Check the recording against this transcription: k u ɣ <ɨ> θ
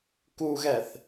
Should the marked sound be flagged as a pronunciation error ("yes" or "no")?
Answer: yes